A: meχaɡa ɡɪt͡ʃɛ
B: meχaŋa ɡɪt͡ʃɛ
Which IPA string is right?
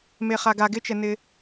A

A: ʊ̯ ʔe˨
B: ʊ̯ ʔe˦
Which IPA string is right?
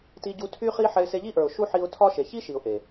A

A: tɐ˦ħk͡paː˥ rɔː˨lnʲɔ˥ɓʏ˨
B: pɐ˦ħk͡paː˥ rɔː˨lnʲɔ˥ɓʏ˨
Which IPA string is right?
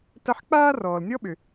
A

